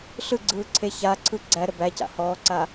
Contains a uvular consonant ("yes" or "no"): no